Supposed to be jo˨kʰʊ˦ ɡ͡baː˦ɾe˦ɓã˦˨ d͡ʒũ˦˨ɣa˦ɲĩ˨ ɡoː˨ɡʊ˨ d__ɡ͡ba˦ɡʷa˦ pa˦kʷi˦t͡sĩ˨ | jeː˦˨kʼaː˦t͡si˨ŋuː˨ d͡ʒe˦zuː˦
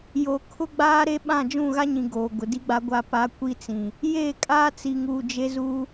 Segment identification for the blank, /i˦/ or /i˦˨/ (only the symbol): i˦